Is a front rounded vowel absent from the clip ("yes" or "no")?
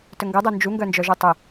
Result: no